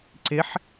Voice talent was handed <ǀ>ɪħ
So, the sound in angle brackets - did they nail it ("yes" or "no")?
yes